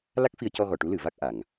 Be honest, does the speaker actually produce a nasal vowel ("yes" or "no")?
no